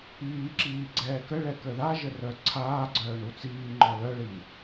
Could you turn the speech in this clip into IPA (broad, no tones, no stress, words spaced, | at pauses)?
iːǁiː ɡ͡ǀɛːkəɭɛ kəðaʒə rœǀʰaːɡ͡ǀœː ɳut͡siːŋ͡ǃɔ lœɭi